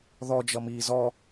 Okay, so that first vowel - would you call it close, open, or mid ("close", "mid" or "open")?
mid